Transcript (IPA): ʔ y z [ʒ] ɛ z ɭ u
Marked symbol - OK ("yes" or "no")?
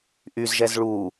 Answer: yes